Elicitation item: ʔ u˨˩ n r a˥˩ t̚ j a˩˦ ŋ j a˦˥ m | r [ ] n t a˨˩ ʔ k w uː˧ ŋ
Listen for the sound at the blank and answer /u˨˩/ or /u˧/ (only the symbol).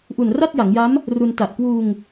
u˧